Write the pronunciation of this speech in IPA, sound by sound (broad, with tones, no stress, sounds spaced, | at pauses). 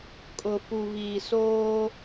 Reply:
kʼ ʊ˨ f u˨ β iː˨ s oː˦